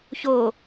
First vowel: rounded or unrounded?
rounded